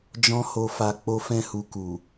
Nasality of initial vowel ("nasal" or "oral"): nasal